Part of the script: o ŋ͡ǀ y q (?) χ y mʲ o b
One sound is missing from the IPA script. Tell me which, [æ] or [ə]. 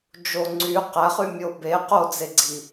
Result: æ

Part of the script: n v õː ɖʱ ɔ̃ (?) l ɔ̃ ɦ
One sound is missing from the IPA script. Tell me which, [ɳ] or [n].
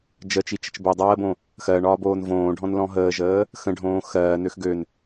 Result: n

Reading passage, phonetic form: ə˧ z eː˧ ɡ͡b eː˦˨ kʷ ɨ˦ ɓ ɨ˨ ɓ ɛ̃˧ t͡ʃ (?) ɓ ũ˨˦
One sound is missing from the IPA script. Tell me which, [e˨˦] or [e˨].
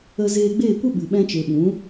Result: e˨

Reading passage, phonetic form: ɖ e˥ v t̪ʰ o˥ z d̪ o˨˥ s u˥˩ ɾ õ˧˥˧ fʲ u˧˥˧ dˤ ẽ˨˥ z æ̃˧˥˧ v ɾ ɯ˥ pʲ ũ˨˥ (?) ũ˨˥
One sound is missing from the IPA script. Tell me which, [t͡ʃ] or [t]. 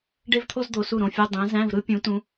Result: t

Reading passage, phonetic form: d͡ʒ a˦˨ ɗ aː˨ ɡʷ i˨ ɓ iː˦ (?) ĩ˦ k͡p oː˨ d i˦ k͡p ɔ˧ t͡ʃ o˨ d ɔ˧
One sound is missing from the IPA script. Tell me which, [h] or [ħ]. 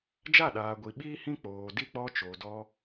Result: h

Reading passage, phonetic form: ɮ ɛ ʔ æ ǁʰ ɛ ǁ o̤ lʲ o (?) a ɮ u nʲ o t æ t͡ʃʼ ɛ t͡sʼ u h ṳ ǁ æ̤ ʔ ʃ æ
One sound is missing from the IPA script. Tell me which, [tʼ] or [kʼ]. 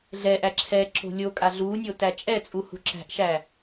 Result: kʼ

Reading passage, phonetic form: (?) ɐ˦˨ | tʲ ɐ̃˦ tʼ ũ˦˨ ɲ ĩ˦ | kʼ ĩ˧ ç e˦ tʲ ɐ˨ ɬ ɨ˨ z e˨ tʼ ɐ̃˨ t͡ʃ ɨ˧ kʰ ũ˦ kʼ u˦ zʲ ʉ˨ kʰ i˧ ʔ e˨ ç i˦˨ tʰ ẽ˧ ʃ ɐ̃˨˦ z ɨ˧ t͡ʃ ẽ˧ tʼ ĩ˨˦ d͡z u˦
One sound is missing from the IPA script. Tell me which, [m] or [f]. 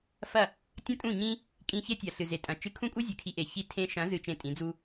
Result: f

